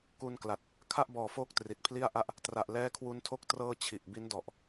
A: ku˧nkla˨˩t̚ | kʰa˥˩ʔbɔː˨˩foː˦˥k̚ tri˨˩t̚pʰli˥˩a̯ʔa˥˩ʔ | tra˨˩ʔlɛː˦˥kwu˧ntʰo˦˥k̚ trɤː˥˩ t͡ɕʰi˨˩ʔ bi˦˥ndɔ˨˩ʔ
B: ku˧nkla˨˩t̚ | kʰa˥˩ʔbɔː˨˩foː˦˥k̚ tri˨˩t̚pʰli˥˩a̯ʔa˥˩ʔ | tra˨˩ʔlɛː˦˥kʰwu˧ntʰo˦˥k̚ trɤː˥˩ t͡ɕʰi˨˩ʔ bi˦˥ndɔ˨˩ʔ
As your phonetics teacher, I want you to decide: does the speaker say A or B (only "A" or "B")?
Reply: B